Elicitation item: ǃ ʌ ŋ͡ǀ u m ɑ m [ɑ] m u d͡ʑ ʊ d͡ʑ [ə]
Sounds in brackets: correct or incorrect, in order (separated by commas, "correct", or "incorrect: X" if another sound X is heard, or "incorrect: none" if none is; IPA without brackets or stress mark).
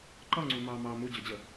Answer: correct, correct